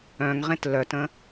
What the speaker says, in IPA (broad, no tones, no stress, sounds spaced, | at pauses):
œ̃ ŋ ʁ ẽ t l œ t ə̃